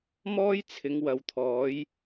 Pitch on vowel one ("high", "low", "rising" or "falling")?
high